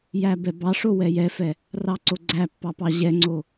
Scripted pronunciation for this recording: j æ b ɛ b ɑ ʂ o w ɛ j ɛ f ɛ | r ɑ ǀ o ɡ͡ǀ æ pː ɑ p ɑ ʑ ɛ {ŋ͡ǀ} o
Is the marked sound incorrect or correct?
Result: correct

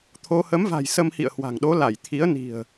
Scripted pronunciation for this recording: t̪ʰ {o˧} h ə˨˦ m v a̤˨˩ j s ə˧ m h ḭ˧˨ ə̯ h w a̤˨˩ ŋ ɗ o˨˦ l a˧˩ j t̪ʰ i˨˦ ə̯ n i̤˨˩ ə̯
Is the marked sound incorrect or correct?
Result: correct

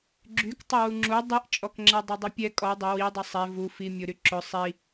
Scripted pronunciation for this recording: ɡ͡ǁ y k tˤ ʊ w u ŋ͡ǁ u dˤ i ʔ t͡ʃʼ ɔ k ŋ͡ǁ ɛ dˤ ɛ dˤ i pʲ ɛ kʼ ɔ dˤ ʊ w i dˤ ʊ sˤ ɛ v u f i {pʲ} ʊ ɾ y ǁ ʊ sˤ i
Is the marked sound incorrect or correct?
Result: incorrect: mʲ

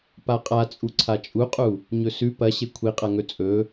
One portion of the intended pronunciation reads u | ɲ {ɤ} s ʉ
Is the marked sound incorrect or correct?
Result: incorrect: ɵ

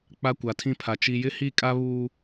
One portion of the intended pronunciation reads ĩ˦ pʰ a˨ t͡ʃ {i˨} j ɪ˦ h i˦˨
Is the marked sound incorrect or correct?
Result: correct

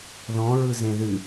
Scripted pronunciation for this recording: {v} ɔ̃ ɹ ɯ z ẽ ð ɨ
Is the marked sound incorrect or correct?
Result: incorrect: ð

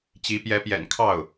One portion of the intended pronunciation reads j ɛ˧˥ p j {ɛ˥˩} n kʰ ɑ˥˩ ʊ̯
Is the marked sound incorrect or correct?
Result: incorrect: ɛ̰˨˩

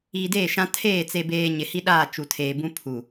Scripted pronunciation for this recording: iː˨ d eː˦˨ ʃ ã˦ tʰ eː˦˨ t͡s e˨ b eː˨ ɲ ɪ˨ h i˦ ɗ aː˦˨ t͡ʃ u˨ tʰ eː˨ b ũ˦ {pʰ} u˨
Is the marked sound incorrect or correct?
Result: correct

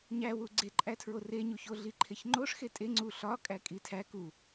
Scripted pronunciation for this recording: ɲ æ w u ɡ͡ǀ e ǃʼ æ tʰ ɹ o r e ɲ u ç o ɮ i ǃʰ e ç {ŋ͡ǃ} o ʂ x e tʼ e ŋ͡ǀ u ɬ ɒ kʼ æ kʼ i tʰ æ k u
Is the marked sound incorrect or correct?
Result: correct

